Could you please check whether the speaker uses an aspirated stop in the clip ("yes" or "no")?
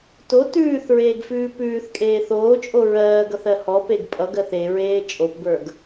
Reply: no